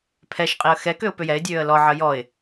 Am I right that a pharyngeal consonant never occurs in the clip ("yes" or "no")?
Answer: no